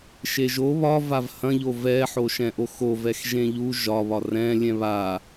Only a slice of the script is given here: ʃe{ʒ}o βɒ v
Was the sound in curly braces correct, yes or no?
yes